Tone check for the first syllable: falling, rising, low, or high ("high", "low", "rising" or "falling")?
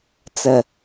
low